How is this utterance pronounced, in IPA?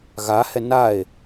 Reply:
ɣ a h ɛ n a e̯

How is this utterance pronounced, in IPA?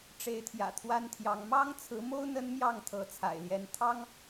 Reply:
ʈ͡ʂ e˨˦ ɪ̯ t̪ʰ j ä̰˨˩ t̪ʰ w a˦ n t̪ʰ j ɑ˨˦ ŋ m ɑ˦ ŋ t͡sʰ ɹ̩˨˦ m o˦ ʊ̯ n̪ ə˦ n m j ɑ˥˨ ŋ t̪ʰ ɤ˨˦ t͡sʰ a̰˨˩ ɪ̯ l j ɛ˨˦ n t̪ʰ ɑ˦ ŋ

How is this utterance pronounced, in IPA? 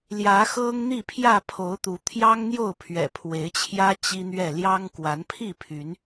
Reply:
l j ä˨˦ x ɤ˦ ŋ n̪ i˥˨ pʰ j ä˥˨ pʰ o˨˦ ʊ̯ t̪ u˨˦ t̪ʰ j ɑ˦ ŋ n̪ j o˥˨ ʊ̯ pʰ ɥ ɛ̰˨˩ pʰ w e˨˦ ɪ̯ t͡ɕʰ j ä˦ t͡ɕ i˦ n̪ ɥ ɛ˥˨ l j ɑ˦ ŋ k w a˨˦ n pʰ i˥˨ pʰ y˨˦ n

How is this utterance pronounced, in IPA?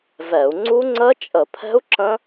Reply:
v ɛ˧˩˧ u̯ ŋ͡ǀ u˦˥ ŋ͡ǀ ə˦˥ t͡ʃʼ ə˧˩˧ pʰ ɛ̤˦˥ u̯ ǁ ə̃˦˥

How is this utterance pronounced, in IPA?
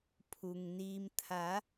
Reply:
pʰ u˩ ŋ n iː˩ m t̪ʰ a˩˧

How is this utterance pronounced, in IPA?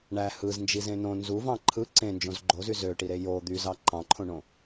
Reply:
ɳ æ h ɯ z n d͡ʒ i z ẽ n õ n z u v ɑ̃ ǃʰ ɯ ǀ ẽ n d͡ʒ õ z ɡ͡ǃ o z y z ø ʈ i ɾ e j o d̪ y z ɑ ǃ ɑ̃ ǃʰ õ ɳ õ

